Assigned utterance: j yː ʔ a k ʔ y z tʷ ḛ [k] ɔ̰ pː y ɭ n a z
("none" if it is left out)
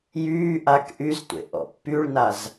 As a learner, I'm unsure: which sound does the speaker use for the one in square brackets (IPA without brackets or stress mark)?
ʔ